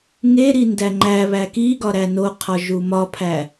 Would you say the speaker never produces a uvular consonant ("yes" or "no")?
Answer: no